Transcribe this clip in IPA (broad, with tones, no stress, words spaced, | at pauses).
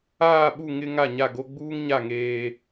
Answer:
aː˦˨ɓu˦˨ŋɪ˦ ŋa˦˨ɲa˦˨ɡo˦ ɡ͡buː˦ŋɲa˦˨ ŋeː˦